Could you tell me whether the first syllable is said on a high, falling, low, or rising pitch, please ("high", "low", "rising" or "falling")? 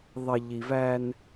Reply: low